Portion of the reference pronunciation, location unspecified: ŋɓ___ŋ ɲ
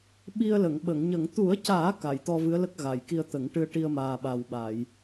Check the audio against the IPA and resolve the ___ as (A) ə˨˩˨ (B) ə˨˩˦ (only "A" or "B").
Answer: A